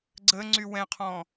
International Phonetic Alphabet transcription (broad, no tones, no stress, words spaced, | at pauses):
ɡ͡ǀə ŋ͡ǀywɛ̃qʰɔ̃